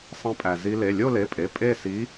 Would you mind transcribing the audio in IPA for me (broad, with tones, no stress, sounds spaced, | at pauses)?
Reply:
sˤ ẽ˧ pʼ æ˩ z i˧ l e˩˧˩ lʲ o˥˧ l e˩˧˩ pʼ e˩˧˩ pʼ e˥˧ s i˧˥